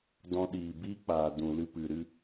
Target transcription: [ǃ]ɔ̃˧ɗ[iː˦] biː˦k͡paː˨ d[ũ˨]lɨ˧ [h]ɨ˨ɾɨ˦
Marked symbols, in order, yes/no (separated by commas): no, no, yes, no